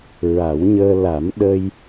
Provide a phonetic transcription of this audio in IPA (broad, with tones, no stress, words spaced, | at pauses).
ɹa˨˩˦wɲəː˧ la˨˩˦m ɗə˧j